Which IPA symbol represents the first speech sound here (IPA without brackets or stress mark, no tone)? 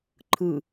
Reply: ǃʰ